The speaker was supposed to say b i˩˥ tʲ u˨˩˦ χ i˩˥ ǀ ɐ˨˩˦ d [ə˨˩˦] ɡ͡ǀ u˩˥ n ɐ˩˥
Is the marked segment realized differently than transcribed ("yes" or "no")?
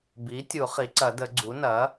no